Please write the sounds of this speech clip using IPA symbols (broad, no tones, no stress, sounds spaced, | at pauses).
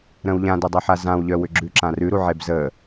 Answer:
ɾ ə̃ w ʎ ã d ə dˤ œ ħ a z ã w ʎ œ w ʏ ɡ͡ǁ ʉ ǁ ã r ʉ ɾ u ʕ e b z ə